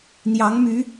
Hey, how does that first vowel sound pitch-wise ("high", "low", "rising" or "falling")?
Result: rising